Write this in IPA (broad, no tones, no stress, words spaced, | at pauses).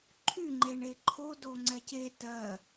ǃʰyŋ͡ǃeɳe ǃʰodoŋ͡ǀɛ ce tɜ